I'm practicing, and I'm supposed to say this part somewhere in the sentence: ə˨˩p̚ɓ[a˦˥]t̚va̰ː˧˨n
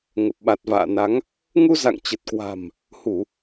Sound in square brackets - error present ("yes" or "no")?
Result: yes